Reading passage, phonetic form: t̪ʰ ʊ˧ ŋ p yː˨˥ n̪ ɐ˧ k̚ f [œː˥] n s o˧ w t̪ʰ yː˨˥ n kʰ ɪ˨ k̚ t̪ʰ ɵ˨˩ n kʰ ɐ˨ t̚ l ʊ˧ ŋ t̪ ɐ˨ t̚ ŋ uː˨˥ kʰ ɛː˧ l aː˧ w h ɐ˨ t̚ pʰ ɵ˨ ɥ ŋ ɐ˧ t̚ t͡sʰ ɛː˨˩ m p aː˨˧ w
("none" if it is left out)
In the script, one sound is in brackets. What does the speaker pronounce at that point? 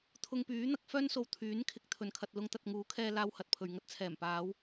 œː˥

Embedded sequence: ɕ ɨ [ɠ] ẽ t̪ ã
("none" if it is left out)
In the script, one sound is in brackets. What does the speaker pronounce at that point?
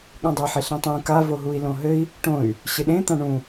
ɗ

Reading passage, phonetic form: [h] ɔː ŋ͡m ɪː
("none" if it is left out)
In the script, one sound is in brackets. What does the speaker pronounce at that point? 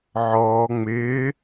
ʕ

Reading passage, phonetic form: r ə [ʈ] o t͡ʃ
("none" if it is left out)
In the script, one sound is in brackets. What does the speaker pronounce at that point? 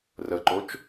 ǃ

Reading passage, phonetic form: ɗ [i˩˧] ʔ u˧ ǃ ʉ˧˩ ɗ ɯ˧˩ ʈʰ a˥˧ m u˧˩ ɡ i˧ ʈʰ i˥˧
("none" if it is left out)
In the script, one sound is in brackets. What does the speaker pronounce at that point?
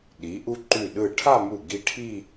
i˩˧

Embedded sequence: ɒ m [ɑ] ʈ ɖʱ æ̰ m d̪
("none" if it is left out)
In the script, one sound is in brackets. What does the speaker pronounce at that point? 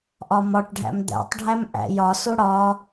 ɒ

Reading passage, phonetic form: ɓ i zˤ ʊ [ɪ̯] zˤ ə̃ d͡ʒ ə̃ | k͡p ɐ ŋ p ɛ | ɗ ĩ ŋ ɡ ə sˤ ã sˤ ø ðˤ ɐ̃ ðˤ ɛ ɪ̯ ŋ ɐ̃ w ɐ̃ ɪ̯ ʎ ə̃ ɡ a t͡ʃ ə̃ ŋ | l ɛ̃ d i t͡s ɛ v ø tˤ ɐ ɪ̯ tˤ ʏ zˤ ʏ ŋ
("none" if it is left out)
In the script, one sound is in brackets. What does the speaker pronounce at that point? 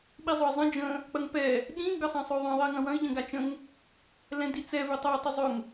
ɪ̯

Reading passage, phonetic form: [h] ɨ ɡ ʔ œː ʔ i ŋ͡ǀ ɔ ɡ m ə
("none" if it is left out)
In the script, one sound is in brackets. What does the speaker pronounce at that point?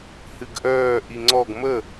h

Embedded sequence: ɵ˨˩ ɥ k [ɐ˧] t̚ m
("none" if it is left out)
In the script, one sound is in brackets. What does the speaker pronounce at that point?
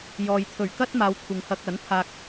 ɐ˥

